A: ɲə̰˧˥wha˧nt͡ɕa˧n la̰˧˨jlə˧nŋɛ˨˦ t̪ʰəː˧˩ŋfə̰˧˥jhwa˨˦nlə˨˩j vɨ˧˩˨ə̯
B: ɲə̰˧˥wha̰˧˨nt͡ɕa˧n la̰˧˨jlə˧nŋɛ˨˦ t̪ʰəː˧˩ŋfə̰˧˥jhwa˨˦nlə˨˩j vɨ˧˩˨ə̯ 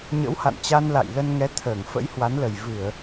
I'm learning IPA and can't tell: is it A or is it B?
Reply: B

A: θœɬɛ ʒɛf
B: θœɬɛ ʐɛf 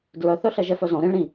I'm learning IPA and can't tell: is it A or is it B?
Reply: A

